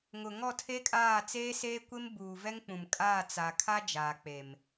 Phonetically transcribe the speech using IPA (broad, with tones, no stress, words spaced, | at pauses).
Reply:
ŋʊ˨ ŋɔ˦˨tʰe˦ kʼaː˦˨t͡seː˦seː˦kʷe˦m buː˨vɛ˦ŋk͡pũ˨mkʼaː˦˨ t͡sa˨kʰa˦ d͡ʒaː˨k͡pe˨m